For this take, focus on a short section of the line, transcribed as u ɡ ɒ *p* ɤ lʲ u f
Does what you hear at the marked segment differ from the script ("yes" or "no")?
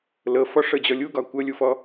yes